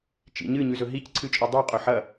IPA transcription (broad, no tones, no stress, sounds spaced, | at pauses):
t͡ʃ ḭ ɲ ɨ ɲ ʉ z ɵ ɦ i c ǀʰ ɨ t͡ʃʼ ɵ dˤ ɨ qʼ ɵ ħ ɐ